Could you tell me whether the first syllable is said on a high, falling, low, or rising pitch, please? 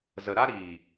low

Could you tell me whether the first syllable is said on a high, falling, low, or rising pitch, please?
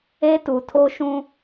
high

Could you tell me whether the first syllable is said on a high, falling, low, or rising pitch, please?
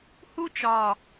high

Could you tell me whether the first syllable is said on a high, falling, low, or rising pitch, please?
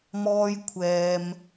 high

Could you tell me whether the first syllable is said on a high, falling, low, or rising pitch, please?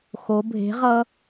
rising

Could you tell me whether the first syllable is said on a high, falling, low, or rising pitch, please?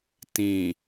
low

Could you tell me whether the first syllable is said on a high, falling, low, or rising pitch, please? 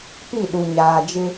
falling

